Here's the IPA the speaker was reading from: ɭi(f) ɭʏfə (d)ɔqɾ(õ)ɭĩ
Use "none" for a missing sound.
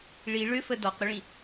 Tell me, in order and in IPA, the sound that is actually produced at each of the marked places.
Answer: none, d, o

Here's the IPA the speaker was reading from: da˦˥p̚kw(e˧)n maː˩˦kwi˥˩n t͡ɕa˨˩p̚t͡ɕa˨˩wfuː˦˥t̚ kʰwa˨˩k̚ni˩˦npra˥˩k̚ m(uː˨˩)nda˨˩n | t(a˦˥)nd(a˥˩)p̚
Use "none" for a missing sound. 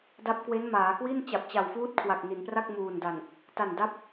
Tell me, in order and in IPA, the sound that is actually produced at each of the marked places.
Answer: e˦˥, uː˨˩, a˨˩, a˦˥

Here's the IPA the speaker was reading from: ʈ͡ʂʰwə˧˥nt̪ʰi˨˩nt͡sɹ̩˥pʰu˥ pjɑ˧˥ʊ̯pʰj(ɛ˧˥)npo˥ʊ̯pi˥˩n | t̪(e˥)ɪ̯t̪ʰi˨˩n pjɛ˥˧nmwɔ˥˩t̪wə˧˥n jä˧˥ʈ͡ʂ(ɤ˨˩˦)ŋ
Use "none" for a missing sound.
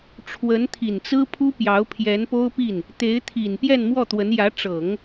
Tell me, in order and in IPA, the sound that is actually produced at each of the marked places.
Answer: ɛ˧˥, e˧˥, ɤ˨˩˦

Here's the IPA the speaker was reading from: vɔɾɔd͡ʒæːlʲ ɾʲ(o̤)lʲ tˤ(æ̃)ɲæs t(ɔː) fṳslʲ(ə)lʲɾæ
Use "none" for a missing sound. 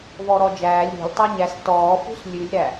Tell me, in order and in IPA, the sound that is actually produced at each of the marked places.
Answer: o̤, æ, ɔː, ʉ

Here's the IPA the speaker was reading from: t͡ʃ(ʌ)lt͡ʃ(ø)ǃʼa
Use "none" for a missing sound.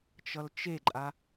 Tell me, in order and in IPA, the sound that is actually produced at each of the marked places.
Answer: ʌ, e

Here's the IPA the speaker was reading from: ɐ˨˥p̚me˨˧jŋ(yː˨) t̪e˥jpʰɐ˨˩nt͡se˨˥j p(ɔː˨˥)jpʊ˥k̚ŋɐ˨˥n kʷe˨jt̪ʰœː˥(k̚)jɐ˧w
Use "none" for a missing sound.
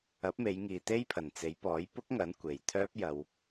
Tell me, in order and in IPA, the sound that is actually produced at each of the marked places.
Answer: iː˨, ɔː˨˥, p̚

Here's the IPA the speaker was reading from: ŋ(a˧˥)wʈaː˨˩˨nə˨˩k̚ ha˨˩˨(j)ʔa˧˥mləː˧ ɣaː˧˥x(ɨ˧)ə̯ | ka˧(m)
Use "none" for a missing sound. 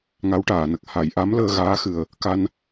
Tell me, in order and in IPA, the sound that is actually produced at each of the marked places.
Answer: a˧˥, j, ɨ˨˩, n

